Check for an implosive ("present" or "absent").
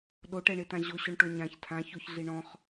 present